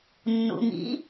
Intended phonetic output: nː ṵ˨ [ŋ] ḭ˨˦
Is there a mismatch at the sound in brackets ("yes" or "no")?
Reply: no